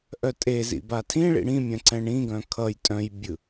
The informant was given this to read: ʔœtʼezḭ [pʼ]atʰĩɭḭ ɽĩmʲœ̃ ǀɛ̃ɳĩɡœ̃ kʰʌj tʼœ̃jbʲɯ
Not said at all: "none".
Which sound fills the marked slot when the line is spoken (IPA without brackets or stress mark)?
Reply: b